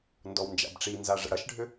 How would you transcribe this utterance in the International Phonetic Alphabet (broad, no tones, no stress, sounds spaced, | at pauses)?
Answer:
n d ɔ w n d͡ʒ a̰ b ʈ͡ʂ i n z a ʐ ə̰ ɽ ɐ ʃ ɖʱ ʏ